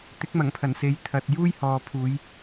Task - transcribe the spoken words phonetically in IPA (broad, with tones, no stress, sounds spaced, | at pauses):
t̪ ɪ˨˥ k̚ m ɐ˨˩ ŋ pʰ ɐ˨˩ n s e˨ j t̪ʰ ɐ˨ t̚ j uː˥ j h ɔː˨ pʰ uː˨˧ j